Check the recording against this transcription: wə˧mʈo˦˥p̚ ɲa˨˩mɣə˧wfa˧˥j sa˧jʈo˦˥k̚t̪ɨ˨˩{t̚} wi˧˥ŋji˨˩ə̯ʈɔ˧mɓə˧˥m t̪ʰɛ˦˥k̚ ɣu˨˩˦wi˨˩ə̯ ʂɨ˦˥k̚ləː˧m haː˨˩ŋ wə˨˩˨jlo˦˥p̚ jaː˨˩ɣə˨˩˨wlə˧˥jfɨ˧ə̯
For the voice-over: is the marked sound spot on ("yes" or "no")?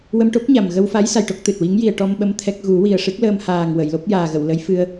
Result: yes